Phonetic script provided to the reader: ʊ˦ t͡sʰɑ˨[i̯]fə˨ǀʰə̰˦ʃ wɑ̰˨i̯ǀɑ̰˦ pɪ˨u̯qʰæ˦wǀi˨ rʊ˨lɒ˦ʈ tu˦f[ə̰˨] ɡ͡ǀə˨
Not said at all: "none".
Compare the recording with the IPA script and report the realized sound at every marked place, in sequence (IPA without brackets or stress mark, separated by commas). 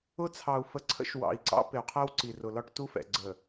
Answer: u̯, ɛ̰˨